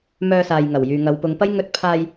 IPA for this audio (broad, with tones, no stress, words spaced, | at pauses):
mœː˧saː˨jŋɐ˨˩w jyː˨ŋɐ˨˧wpʊ˨˧ŋpɐ˥j ŋɵ˧t̚pʰaː˧j